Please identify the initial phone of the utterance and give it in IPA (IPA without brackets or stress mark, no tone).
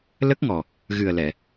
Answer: l